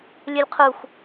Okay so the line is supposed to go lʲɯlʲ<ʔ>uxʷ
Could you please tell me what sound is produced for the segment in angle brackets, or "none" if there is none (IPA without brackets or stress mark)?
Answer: qʰ